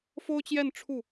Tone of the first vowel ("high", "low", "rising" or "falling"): high